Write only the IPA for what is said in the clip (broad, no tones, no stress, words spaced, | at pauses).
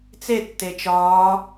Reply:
t͡se tːet͡ʃɒː